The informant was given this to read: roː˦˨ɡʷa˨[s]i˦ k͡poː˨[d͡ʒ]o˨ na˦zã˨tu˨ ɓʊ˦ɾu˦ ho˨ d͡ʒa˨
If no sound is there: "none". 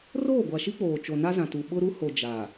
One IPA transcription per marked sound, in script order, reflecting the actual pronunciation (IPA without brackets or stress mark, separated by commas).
ʃ, t͡ʃ